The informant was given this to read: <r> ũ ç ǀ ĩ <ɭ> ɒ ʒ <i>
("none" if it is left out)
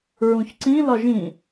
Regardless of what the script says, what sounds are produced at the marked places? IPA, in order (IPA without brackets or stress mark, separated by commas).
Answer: ɹ, l, ĩ